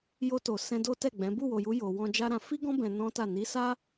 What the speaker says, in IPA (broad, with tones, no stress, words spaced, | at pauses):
jo˧to˨ sɛ̃˧do˦ tɛ˦˨ɡ͡bɛ̃˨˦ bu˦˨wo˨ju˨˦ jo˧ wɔ̃˧d͡ʒa˦ɾã˧ fi˦ɡɔ̃˦ bɛ̃˧ nɔ̃˦ta˦˨ ni˨˦sa˦